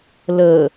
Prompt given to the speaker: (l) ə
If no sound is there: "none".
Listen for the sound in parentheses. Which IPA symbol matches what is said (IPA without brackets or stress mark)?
l